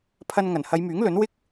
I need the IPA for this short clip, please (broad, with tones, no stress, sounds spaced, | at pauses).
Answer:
pʰ ɐ˧ n ŋ ɐ˨˩ n h ɐ˨˧ j m yː˨˥ ŋ l ɵ˨˥ n w ɪ˥ k̚